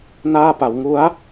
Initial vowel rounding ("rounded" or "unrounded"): unrounded